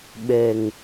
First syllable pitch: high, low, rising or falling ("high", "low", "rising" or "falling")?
low